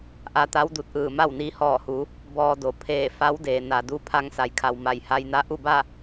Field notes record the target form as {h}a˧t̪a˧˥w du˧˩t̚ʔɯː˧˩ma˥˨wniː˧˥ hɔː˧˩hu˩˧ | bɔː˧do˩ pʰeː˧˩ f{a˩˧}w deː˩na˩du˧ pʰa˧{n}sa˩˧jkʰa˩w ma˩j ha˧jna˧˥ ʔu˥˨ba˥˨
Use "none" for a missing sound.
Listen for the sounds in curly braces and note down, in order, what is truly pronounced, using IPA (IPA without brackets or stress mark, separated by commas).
ʔ, a˧˥, ŋ